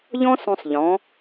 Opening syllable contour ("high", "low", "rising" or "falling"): high